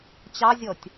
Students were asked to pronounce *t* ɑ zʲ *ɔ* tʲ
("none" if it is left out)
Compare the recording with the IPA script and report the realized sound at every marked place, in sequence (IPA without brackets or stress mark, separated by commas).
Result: t͡ɕ, ɔ